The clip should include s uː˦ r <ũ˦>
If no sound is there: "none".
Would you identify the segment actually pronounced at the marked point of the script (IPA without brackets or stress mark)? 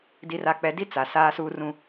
ũ˦